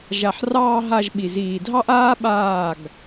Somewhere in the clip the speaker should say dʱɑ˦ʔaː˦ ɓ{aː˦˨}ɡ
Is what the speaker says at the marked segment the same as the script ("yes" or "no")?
yes